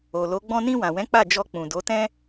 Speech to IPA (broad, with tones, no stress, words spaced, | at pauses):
o˨lo˨˦ ɡ͡bɔ̃˧nĩ˧wã˨wɛ̃˨˦ k͡pa˦˨d͡ʒɔ˧ k͡pũ˨do˨˦tɛ̃˦